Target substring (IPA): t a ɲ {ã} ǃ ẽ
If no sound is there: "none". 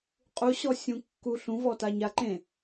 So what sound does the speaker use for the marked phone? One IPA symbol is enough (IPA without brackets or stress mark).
a